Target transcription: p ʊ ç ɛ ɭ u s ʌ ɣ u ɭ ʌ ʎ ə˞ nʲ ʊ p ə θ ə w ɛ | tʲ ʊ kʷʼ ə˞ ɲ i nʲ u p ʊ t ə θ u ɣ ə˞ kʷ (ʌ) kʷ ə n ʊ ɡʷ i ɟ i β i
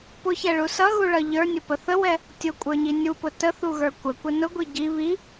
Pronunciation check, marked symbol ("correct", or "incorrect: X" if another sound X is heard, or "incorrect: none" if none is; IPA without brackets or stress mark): incorrect: ə